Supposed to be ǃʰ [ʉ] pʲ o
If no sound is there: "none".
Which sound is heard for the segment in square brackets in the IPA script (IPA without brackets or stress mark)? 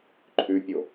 ʉ